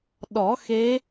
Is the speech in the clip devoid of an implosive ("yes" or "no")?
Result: no